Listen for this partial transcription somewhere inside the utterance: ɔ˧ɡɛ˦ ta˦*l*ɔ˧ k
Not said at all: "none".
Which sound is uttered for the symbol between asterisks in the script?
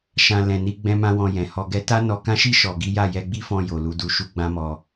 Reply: n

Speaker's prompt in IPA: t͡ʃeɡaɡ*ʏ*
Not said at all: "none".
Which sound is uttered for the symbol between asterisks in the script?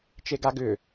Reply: ʏ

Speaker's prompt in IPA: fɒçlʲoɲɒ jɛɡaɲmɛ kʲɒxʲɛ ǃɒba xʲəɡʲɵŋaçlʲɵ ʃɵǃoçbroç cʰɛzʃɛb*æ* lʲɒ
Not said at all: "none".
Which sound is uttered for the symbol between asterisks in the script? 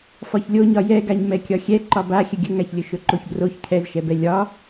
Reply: ɛ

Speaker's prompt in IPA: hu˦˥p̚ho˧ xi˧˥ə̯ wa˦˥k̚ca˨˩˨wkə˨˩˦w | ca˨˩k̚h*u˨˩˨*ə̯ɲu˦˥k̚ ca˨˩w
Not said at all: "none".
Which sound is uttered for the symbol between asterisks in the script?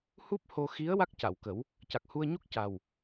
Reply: u˧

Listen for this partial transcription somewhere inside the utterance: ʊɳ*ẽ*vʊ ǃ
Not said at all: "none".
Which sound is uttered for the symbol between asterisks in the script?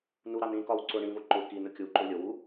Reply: ĩ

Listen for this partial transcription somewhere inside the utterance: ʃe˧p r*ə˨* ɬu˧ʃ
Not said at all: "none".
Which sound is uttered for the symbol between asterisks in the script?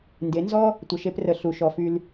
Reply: ə˨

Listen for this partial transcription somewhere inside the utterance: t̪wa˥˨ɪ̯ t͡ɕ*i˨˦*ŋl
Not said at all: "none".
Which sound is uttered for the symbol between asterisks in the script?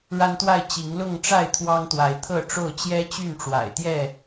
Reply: i˨˦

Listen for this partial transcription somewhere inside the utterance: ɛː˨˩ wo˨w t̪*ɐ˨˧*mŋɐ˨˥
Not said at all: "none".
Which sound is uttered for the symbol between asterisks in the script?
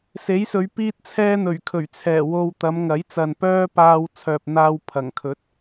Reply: ɐ˨˧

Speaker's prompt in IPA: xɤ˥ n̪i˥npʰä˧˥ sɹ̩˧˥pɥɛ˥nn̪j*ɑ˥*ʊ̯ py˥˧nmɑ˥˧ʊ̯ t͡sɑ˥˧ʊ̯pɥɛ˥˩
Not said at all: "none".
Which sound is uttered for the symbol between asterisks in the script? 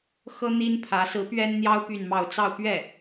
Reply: ɑ˥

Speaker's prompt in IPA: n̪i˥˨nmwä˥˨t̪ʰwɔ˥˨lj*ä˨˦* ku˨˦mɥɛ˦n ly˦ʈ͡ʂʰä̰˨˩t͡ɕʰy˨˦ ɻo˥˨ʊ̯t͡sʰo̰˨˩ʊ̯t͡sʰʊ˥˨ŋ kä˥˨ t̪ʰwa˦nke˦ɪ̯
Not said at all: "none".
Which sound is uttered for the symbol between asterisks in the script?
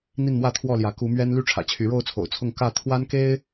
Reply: ä˨˦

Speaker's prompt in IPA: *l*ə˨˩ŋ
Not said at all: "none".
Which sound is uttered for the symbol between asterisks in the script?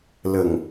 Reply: l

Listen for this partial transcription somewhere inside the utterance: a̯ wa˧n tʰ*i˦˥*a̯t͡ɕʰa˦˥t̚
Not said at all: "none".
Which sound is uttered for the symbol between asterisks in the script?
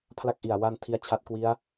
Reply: i˦˥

